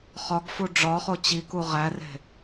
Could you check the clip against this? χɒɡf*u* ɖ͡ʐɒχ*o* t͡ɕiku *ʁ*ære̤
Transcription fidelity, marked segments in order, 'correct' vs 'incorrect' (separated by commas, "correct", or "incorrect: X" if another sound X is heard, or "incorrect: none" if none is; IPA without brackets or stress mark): correct, correct, correct